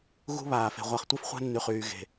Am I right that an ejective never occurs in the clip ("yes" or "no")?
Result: yes